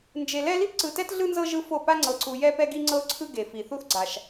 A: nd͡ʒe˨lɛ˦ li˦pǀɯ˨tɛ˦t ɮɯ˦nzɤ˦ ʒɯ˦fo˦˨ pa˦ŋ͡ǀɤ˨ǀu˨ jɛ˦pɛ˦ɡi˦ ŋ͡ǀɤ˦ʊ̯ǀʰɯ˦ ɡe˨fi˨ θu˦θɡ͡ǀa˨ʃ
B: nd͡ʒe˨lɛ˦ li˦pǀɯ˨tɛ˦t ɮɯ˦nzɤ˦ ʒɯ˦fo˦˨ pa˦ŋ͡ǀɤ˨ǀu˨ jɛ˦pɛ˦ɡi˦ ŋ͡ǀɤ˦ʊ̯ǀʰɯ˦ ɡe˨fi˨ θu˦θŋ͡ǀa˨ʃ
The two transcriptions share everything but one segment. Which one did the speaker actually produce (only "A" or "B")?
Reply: A